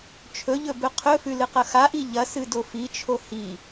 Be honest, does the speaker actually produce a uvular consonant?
yes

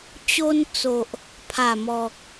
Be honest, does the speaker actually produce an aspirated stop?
yes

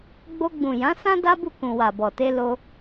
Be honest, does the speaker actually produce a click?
no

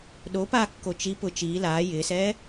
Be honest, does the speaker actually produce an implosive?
yes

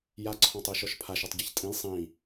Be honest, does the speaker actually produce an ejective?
yes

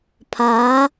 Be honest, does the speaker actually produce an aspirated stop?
yes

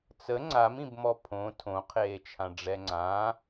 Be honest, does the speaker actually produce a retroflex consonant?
yes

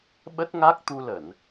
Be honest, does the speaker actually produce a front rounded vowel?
no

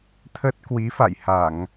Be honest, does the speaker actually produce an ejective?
no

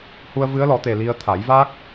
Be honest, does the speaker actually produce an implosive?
no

